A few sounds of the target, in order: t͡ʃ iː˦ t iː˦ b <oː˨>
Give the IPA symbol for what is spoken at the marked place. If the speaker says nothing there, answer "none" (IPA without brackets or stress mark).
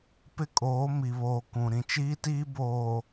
oː˨